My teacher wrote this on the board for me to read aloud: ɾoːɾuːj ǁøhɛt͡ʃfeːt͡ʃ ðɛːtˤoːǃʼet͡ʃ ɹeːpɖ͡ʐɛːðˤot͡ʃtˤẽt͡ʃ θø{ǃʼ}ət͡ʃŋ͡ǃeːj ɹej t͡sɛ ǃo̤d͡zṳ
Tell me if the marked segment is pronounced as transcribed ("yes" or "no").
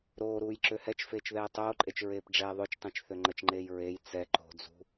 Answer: no